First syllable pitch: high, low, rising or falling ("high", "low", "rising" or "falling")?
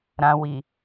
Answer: low